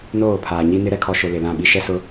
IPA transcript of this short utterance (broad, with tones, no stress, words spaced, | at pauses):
noː˦˨pʰaː˨ɲi˦nɪ˦ ɾɛ˦kʰɔ˨ ʃʊ˨ lɪ˨lã˦˨ɓi˦ ʃɛ˦sʊ˦